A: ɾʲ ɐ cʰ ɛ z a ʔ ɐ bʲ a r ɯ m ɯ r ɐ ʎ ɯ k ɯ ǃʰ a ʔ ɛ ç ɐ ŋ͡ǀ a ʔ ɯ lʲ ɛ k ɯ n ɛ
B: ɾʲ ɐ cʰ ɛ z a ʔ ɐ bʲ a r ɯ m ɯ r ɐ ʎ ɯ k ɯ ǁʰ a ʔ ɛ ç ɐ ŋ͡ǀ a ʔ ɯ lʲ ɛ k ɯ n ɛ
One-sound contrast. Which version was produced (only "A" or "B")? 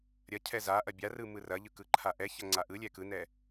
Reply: A